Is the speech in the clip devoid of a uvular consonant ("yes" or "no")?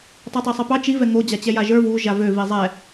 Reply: yes